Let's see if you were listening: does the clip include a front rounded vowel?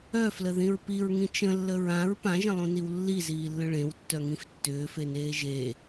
yes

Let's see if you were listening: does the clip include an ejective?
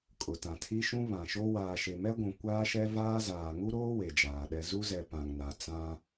yes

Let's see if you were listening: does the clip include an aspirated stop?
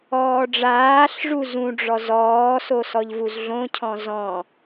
yes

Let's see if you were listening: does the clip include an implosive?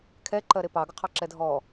no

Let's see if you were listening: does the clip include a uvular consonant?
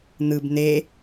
no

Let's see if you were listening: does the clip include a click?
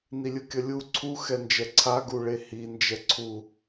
yes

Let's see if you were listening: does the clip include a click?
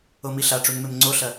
yes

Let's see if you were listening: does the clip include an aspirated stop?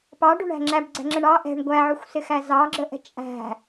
no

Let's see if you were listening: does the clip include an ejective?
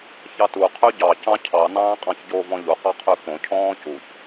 yes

